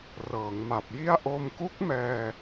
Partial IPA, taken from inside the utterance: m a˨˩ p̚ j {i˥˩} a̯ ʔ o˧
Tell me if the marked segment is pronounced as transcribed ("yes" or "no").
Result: yes